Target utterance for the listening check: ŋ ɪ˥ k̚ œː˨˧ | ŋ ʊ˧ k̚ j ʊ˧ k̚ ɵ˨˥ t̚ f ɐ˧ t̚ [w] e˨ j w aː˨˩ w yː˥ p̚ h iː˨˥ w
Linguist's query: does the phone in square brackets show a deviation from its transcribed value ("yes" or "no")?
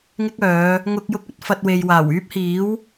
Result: no